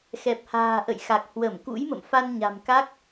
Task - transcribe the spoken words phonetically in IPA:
x ɛ˨˩ p̚ h a̤ː˨˩ ʔ ə̰˧˨ j x a˨˩ k̚ h w ə˧˩ m k ṵ˧˥ j m ə̰˧˨ m f a˧ n ɲ a̤˨˩ m k a˦˥ k̚

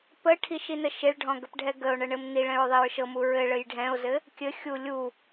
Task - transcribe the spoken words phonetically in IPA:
p ə ʈʰ i ʃ i n ə ʃ e ɭ ɖʱ ɔ̃ ɡ ə p ɖʱ ɛ ɡ ə o̯ ɳ ə ɳ ɘ m n i ɭ ɛ̃ ɹ ðˤ i ɹ ʃ ɤ m u ɹ ɘ ɭ ɘ j ɖʱ ɛ̃ o̯ z ɘ | kʲ ɘ xʲ u lʲ u

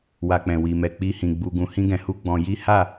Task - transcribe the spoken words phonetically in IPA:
w a˧ k͡p ɛ̃˨ w i˨ m ɛ˨ k͡p i˧ h ĩ˨ ɡ͡b u˧ ɡ ũ˧ h ĩ˦ ɡ ɛ̃˧ h u˦ ɡ͡b ɔ̃˧ j i˦ h a˦˨

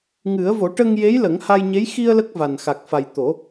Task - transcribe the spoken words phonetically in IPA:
ŋ ɨ˨˩˦ ə̯ v o˨˩˦ ʈ ə˧ ŋ j e˧˥ j l ə˨˩˦ ŋ h a˧ j ɲ e˧˥ j x i˧ ə̯ l ə˦˥ k̚ v a˨˩ n x a˨˩ k̚ f a˨˩ j t̪ o˨˩˦

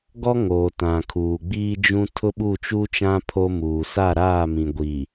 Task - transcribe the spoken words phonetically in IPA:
ɡ ɔ˦ ŋ o˨ t ã˨ kʰ uː˨ ɡ͡b iː˦ d͡ʒ ũ˦ tʰ ʊ˦ ɓ u˦˨ t͡ʃ uː˦ t͡ʃ ã˦ pʰ o˦ m uː˨ s a˦˨ ɾ aː˦˨ m ĩ˨ ɡʷ i˨

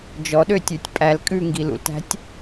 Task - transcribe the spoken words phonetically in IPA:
d͡ʒ ɔ ɗ ø tʲ ʉ tʲ pʼ æ l kʼ ʉ ŋ ɡ i l ṵ l t æ̤ tʲ

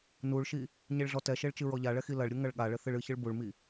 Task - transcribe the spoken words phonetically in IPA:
n u ɭ ʃ i | ɲ e ɭ ɮ ɔ t ɛ ʃ e ɭ t͡ʃ ɨ ɹ ɔ ʎ a ɭ ɛ x i l ɐ ɭ ɾʲ u ŋ ɐ ɭ ɠ a ɭ ɘ θ ɨ ɭ ɨ ç ɨ ɭ b u ɭ m i

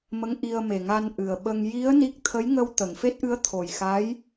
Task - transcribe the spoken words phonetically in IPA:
m ə˧˥ ŋ ʔ i˧ ə̯ m e˨˩ ŋ a˧ n ʔ ɨ˨˩ ə̯ ɓ ə˧ ŋ j i˧˥ ə̯ n i˦˥ k̚ t̪ʰ ə˧˥ j ŋ ə˧ w t̪ ə˨˩˨ ŋ f e˦˥ t̚ ʔ ɨ˧˥ ə̯ t̪ʰ o˨˩ j x a˧˥ j

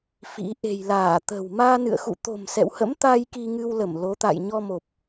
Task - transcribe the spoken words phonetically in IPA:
f ḭ˧˥ ʔ e̤˨˩ j l aː˧˩ t̪ ə̤˨˩ w m aː˧ n ɨ̰˧˨ ə̯ x ṵ˧˨ t̪ o̤˨˩ m s ɛ̰˧˨ w h ə̰˧˥ m t̪ aː˧ j k i˧ ŋ ɨ˧ w l ə˧˩ m l o˨˦ t̪ a̰˧˨ j ɲ ɔ˧ m o˨˩ p̚

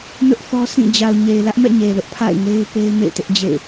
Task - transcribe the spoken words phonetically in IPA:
n ʊ˦ ʔ θ ɔ˦ sʰ ĩ˦˨ d͡ʑ a˨ ʊ̯ ɲ e˨ ɪ̯ l ä˦ ʔ m ɛ̰˦˨ ɲ e˨ l ʊ˦ ʔ pʰ a̰˦˨ ɪ̯ ŋ e˦ ɪ̯ p e˦ ɪ̯ m ḛ˦˨ ɪ̯ t ɪ˦ ʔ d͡ʑ ḛ˦˨ ɪ̯

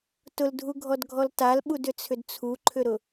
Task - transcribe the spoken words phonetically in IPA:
t ʊ l dʱ u ɡʱ ɔ d ɡʱ ɔ l t a l ɓ u d ʏ t͡sʰ ʏ d t͡sʰ u ǃʰ ʏ ɾ ʊ

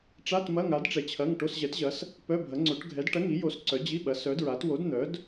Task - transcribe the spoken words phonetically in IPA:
ʈ͡ʂ a˧˥˧ t m ɐ˧˥˧ ŋ a˨˥ d ʈ͡ʂ ɛ˨˥ t͡ɕʰ ɐ˧˥˧ ŋ ʈ o˧˥˧ s ʑ ɛ˨˥ t ʑ ɐ˨˥ s | p œ˧˥˧ bʱ ɐ˨˥ ŋ͡ǀ o˨˥ ʈ ɡʱ ɛ˨˥ d ʈ ɐ˧˥˧ ŋ i˨˥ j o˨˥ s ǀ œ˨˥ d͡ʑ i˧˥˧ ɓ ɐ˨˥ s œ˨˥ d ɹ a˨˥ t w o˨˥ d n̪ œ˨˥ d

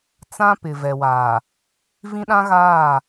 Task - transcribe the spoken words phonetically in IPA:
t͡s ã˦ p ɪ˨ v ɛ˨ w aː˨ | v ĩ˦ ɗ ã˦ ɣ aː˦˨

